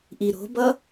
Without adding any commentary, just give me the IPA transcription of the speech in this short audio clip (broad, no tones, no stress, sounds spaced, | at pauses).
ʔ i ɾ o̤ b ʌ